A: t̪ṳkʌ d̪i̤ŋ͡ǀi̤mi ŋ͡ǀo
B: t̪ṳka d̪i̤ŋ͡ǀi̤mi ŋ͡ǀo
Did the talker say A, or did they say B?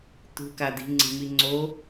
B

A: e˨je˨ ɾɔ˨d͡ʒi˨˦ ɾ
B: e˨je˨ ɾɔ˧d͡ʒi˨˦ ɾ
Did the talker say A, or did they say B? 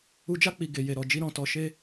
A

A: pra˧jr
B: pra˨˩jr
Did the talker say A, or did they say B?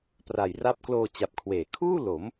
B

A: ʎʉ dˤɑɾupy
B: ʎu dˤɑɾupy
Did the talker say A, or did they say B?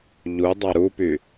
B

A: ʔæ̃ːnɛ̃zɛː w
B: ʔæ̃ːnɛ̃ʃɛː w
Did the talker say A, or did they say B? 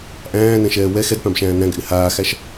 B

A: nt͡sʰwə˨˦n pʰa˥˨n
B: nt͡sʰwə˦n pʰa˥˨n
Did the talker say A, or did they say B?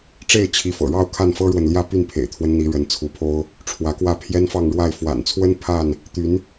B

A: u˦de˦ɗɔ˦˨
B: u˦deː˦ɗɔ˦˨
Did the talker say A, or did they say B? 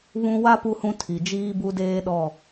B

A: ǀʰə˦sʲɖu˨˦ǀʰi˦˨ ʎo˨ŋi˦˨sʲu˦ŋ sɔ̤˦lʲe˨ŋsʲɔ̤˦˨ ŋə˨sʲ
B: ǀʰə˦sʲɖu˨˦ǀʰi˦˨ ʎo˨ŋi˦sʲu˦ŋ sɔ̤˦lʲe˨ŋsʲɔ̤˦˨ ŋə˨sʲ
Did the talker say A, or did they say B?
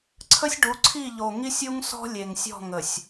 B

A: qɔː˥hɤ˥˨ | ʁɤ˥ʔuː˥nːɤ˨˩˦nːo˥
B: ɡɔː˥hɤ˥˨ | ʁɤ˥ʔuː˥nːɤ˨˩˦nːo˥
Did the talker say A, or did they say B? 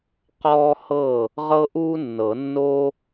A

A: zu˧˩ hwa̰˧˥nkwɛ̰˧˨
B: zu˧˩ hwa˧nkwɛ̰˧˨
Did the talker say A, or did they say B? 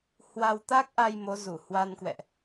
B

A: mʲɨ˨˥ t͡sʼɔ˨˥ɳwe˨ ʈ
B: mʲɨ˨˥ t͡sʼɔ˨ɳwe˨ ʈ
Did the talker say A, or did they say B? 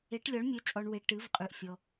B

